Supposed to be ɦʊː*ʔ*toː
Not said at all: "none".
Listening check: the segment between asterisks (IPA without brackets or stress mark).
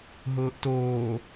ʔ